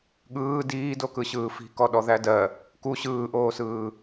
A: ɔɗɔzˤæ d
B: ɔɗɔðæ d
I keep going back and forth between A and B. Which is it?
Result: B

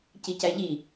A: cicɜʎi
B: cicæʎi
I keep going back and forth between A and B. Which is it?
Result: B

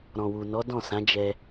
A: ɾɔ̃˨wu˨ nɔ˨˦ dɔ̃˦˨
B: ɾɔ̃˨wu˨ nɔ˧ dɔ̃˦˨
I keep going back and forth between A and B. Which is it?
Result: A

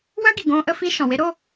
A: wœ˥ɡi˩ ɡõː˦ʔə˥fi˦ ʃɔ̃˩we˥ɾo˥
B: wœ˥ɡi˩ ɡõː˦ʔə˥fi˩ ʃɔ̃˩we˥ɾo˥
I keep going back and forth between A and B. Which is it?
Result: A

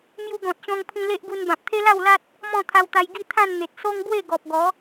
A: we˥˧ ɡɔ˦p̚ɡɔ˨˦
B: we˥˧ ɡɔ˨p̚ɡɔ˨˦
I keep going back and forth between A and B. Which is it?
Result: B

